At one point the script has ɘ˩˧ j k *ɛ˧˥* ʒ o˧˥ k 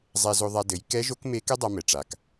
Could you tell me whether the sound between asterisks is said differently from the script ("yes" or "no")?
no